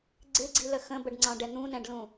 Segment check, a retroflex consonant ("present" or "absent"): present